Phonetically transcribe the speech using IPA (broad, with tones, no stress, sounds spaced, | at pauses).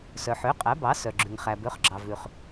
s œ˩ ħ ø˩˥ qʼ æ˩˥ b ɑ˩˥ s œ˩ ɡ͡ǁ ʉ˩ ŋ χ æ˩ b ø˩˥ χ ɡ͡ǁ ɑ˩ v ʉ˩ χ